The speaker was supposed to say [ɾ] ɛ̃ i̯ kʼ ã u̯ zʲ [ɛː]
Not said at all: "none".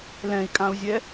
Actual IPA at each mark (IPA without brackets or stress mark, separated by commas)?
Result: l, ɛ